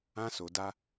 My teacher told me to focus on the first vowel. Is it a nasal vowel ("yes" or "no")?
yes